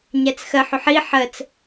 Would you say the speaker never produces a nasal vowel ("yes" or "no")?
yes